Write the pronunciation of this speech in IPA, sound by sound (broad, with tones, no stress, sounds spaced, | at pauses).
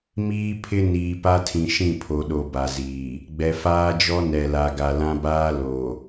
m iː˦ pʰ ɪ˦ n iː˨ p a˦ tʰ ĩ˨ ʃ ĩ˦˨ pʰ o˨ ɗ o˨ b a˨ z iː˨ | ɡ͡b ɛ˨ f aː˦ d͡ʒ ɔ˦ n ɛ˨ l a˨ ɡ a˨ l ã˦ b aː˦ l o˨